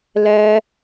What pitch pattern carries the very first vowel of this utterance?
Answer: high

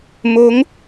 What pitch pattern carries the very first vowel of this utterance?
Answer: rising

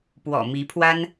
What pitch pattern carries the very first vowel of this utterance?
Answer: low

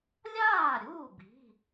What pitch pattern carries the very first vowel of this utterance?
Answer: falling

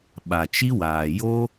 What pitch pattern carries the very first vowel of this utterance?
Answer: low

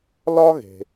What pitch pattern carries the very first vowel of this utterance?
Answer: high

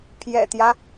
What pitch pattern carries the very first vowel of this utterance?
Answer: low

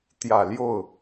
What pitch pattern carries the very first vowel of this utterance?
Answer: low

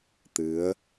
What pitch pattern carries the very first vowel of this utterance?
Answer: rising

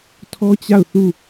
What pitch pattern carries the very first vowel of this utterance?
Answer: high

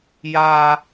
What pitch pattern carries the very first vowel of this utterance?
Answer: high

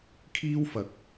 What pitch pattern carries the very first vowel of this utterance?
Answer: high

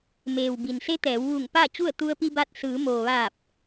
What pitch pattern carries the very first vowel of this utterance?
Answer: low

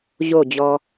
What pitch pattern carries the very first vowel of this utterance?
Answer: falling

